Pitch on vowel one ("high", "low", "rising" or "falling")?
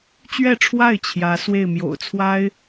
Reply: falling